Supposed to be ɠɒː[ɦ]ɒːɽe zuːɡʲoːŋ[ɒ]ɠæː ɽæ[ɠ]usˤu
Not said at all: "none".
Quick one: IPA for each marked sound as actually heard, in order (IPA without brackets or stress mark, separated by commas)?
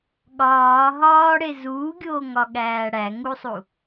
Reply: ɦ, ɒ, ŋ